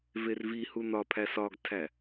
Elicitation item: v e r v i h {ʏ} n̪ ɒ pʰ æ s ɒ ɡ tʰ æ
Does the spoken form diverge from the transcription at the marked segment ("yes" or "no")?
yes